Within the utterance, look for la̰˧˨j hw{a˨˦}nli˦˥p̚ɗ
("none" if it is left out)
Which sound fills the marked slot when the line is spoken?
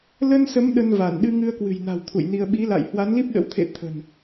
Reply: a˨˦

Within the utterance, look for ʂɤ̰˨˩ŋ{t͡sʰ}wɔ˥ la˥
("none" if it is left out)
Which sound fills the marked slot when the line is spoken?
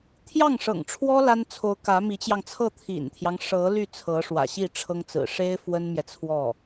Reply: ʈ͡ʂʰ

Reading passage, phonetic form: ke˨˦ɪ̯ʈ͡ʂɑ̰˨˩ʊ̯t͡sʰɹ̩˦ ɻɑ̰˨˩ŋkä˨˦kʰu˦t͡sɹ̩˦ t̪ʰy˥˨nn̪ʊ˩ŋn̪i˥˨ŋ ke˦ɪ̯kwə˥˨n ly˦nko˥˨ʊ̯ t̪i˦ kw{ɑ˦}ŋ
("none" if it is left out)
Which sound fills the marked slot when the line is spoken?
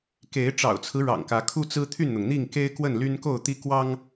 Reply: ɑ˦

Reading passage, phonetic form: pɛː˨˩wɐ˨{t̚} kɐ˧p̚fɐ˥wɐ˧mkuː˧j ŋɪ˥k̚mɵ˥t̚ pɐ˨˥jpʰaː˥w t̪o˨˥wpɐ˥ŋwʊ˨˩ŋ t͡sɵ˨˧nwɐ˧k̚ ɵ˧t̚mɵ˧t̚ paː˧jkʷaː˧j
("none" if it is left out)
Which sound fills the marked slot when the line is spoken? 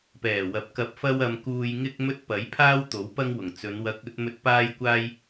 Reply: p̚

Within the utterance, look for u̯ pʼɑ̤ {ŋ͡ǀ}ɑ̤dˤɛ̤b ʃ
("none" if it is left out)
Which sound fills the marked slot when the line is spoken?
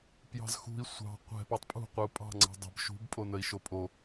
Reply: ŋ͡ǀ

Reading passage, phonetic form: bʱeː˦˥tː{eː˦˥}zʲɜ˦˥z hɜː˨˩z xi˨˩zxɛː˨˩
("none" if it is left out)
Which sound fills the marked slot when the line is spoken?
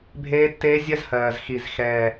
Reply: eː˦˥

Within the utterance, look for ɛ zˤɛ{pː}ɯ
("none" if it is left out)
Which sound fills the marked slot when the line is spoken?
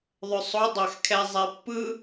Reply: pː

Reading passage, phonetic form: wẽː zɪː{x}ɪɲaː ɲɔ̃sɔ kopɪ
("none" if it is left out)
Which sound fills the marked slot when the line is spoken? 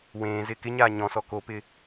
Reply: k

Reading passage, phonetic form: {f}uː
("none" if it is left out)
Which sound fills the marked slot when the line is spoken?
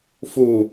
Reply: f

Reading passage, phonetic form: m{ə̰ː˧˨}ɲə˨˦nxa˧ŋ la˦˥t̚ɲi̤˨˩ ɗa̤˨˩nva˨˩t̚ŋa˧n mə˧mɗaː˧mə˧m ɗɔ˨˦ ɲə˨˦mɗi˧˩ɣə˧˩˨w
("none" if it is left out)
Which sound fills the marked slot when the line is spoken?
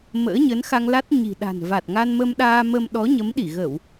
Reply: ə̰ː˧˥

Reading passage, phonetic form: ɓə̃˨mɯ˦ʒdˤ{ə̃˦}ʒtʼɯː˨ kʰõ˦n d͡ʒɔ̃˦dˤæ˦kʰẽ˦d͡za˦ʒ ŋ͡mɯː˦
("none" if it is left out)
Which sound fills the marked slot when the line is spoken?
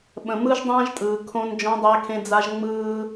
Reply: ã˦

